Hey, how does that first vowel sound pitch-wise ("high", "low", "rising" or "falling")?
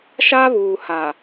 high